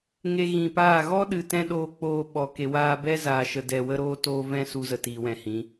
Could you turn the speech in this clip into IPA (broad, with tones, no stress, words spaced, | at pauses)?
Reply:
ŋe˧ ɣĩ˨paː˦˨ ɣɔ˦ɗɨ˨ tɛ̃˦ɗoː˧k͡poː˧ɓɔ˨ ke˨waː˧bɛ˦ zaː˧ʃə˧dɛ˧ wə˦ɾoː˦toː˦ vɛ̃˦su˧zə˨ tiː˨wɛ̃˨hĩ˨˦